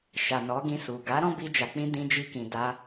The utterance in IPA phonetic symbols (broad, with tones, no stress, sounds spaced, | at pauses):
ʃ a˨ n ɔ˨˦ ɡ ĩ˧ s u˨ ɡ a˨˦ ɾ ɔ̃˦ b i˧ d͡ʒ a˨ k͡p ĩ˧ d ĩ˧ d͡ʒ i˧ k ĩ˨ d a˧